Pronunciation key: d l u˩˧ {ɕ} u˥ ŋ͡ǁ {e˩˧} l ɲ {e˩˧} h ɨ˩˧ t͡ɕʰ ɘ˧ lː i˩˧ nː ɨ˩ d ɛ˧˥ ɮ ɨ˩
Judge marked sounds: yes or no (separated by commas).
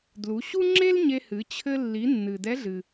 yes, no, no